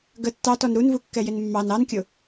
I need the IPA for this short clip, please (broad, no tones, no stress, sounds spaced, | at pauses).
ɡ ə tː ɑ t ɔ n ɾ u n v u kː ɛ j ɪ n mː ɑ n ɑ n kʲ ʊ